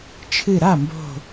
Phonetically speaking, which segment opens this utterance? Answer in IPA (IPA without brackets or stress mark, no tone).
t͡ʃʰ